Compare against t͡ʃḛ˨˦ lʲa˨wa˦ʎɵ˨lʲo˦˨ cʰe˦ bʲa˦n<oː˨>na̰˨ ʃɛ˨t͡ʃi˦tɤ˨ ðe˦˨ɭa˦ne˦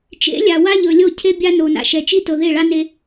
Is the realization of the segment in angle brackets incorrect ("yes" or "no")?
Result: yes